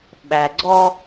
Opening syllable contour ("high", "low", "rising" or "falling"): low